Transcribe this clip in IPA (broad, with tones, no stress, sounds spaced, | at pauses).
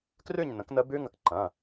k r ʉ˥˧ ɲ n ə̃˩˥ k n ə˦˥ b ʉ˦˥ ŋ ə˩˥ k ǃ ɐ̃˩˧˩